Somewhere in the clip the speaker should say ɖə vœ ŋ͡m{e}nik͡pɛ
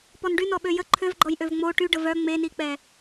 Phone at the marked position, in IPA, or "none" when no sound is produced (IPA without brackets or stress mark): e